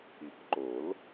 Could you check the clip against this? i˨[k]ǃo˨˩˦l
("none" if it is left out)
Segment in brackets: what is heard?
k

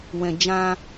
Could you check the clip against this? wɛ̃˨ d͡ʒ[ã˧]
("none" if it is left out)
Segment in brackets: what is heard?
ã˧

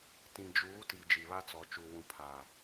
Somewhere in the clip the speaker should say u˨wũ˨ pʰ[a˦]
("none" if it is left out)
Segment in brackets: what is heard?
a˨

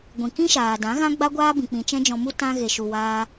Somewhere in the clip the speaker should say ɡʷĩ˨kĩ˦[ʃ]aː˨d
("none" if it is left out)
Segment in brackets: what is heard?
ʃ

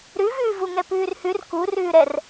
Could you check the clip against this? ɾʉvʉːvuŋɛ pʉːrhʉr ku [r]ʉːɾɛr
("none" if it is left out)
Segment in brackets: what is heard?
r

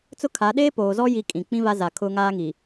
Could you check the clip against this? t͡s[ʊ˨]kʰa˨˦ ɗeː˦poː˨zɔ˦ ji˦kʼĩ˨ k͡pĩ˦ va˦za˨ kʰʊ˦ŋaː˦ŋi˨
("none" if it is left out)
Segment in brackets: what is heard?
ʊ˦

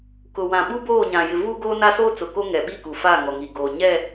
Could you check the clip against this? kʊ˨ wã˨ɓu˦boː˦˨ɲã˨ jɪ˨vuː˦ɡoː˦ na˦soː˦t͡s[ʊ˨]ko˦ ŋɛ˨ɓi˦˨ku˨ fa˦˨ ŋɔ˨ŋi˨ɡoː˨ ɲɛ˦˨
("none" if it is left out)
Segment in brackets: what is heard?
ʊ˨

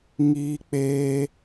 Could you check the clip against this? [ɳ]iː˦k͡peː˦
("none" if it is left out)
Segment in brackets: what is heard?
ŋ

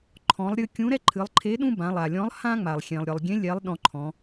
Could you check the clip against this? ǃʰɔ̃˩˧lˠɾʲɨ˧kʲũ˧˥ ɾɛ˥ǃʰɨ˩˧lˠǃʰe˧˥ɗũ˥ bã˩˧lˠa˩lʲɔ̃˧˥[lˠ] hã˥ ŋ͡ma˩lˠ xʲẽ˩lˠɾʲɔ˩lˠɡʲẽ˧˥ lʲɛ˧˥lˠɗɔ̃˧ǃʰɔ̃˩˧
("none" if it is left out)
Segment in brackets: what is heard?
lˠ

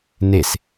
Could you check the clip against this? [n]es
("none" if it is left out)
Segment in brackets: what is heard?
n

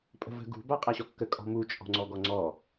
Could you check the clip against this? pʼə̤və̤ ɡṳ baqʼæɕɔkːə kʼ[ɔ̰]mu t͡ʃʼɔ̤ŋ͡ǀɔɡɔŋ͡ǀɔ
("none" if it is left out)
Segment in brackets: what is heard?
ɔ̤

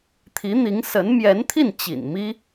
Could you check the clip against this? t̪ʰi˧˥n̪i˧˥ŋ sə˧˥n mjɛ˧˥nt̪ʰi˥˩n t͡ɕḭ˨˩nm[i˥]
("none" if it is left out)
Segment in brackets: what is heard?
i˥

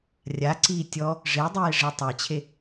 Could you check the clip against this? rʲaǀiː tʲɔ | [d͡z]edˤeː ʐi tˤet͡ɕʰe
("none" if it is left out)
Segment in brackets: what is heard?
ʐ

